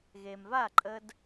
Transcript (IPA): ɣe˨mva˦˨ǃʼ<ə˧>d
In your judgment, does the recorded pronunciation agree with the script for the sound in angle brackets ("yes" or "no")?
yes